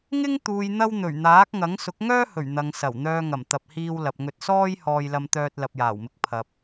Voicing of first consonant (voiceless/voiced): voiced